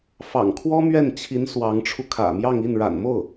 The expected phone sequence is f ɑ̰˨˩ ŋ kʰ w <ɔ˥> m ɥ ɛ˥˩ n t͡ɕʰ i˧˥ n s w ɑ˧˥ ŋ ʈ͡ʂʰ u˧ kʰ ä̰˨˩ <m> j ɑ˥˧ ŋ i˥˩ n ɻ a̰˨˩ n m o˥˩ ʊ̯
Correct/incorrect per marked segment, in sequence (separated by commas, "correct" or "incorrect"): correct, correct